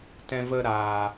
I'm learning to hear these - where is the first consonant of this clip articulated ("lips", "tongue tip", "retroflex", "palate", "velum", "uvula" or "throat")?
tongue tip